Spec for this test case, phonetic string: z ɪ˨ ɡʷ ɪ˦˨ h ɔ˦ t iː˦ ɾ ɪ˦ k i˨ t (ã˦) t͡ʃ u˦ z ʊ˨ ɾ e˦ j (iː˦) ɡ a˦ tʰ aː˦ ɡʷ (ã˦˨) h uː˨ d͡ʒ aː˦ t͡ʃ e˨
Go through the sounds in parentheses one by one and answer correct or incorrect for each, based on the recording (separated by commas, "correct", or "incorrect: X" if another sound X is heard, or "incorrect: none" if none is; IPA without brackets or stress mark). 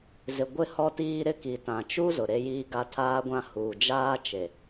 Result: incorrect: ã˨, correct, incorrect: ã˦